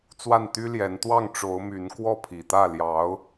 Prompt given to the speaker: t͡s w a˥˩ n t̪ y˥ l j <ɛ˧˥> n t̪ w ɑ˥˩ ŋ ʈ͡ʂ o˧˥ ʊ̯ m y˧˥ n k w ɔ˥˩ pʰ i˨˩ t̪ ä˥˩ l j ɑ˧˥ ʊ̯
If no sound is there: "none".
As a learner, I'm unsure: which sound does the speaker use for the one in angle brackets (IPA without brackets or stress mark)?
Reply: ɛ˧˥